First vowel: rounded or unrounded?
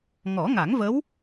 rounded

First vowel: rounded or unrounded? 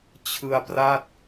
unrounded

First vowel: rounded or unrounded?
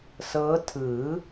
unrounded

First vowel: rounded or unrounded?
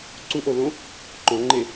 rounded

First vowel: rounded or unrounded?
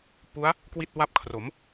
rounded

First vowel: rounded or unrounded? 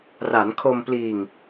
unrounded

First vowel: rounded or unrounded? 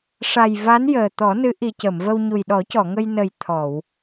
unrounded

